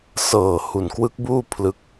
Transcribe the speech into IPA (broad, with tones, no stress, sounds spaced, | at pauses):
s ɤː˨˩ h u˨˩ n k w ɯ˦˥ k̚ b uː˥˩ pʰ l ɯ˦˥ k̚